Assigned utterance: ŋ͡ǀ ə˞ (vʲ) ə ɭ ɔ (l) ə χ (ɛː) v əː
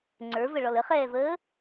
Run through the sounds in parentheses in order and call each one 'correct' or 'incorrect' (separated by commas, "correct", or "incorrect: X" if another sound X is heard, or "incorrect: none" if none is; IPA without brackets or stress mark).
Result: incorrect: v, correct, correct